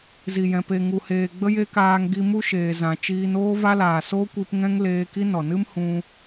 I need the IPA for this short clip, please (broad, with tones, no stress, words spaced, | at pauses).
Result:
zi˨jɛ̃˨ pe˨ŋu˨heː˨ ɡ͡bə˦je˦kaː˧ŋ ɡi˧ mu˦ʃeː˨zã˨t͡ʃiː˧n oː˦va˦laː˨so˦ kʷi˧pŋɛ̃˦ŋ leː˧ ki˦nɔ˨ nɨ˦m hũ˧